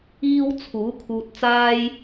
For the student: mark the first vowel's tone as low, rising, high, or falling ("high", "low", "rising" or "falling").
high